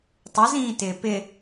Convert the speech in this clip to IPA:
tˤ ə z ĩː t ɪː p ɪ

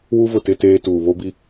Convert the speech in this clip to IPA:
w u˦ v ʊ˨ t ɪ˦ t eː˦ t uː˨ β o˦ b i˦

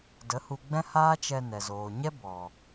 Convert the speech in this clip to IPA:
d ə˨˦ h u˧ ɡ͡b ɛ̃˦ h aː˦ t͡ʃ ɛ˧ n ɛ˨ z oː˨ ɲ ɛ˦ b ɔ˨

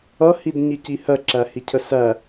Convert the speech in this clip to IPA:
ʌ h i d ɲ i c i h ɜ ǁ æ h i cʰ ə s æ

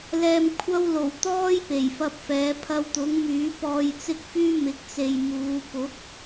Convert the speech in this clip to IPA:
l ɛː˧ m kʷʰ ɐ˥ w l o˨˩ w t̪ ɔː˥ j p e˨˩ j f ɐ˧ p̚ f ɛː˨˥ pʰ ɐ˧ w t̪ ʊ˨˥ ŋ m yː˨˥ p ɔː˧ j t͡s ɪ˥ k̚ f yː˥ m ɪ˨˥ k̚ t͡s e˨ j m uː˨˧ p ʊ˨˥ k̚

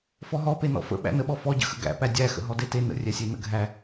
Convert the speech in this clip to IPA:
f ɔ ɦ ɔ p e n ɔ̰ f ə̰ ɓ æ̰ n ə ɓ ɔ f ɔ ɟ ə̰ x ə̰ ɡ æ̰ p æ dʲ æ x ə̰ ɦ ɔ d e t e n ə̰ rʲ æ sʲ e n ə̰ ɡʱ æ

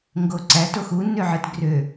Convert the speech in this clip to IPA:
ŋ ɡ o ǀ æ t o x u nː ø ʕ ɯ t ɡ r ø

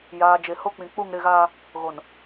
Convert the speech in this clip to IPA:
j aː˨ d͡ʒ e˨ h o˦ k͡p ĩ˨ k͡p u˦˨ ŋ ɾ ɪ˦˨ ɣ aː˦ | ɣ o˨ n

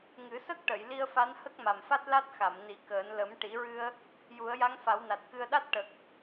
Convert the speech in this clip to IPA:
ŋ ɨ˨˩˦ s ə˦˥ k̚ ʈ ə˨˩˨ j l i˧ ə̯ f a˧˥ n h ə˦˥ k̚ m a˨˩ m f a˦˥ t̚ l a˦˥ t̚ x a˨˩˨ m n i˨˩˦ k əː˨˩˦ n l ə˨˩˦ m ʈ i˨˩˦ ɹ ɨ˧ ə̯ | j u˨˩˦ ə̯ j a˧˥ ŋ f a˨˩˦ w n a˨˩ t̚ k ɨ˧ ə̯ ɗ a˦˥ t̚ ʈ ə˨˩ k̚

